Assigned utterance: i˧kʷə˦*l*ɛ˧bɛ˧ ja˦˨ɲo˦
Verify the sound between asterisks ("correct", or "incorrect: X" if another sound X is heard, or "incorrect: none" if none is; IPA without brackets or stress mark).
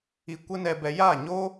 incorrect: n